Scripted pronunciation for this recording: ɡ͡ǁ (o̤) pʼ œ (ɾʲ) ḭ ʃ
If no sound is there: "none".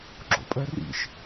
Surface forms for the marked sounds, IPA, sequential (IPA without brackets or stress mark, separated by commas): o̰, r